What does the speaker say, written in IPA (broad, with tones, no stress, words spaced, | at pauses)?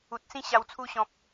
u˨t̚sĩ˥˧ ɕa˨˩wt͡sʰu˧ ɕɔ̃˨p̚